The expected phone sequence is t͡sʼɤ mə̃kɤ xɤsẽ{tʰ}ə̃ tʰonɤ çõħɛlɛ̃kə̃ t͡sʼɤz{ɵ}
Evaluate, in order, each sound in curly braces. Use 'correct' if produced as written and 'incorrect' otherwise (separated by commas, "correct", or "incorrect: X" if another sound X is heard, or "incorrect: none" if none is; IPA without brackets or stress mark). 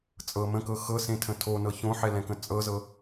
correct, incorrect: ɤ